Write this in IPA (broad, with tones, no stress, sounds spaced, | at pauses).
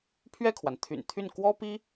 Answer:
pʰ ɥ ɛ˥˩ kʰ w a˩ n t̪ʰ y̰˨˩ n t̪ʰ y˥˩ n k w ɔ˥ p i˥